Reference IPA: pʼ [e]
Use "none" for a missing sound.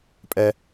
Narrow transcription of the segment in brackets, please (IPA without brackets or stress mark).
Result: ɛ